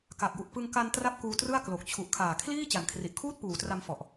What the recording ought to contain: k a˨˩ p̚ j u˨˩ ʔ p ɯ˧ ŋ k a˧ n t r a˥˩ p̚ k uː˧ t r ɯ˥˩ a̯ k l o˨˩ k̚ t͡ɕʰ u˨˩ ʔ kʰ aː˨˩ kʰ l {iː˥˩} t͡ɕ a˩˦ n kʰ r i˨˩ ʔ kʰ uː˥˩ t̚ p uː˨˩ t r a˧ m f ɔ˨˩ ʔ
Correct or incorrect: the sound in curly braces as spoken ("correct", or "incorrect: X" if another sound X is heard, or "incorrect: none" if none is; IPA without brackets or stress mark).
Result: correct